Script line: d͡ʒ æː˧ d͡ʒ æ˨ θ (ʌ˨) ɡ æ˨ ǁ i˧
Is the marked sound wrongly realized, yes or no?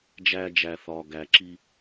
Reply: yes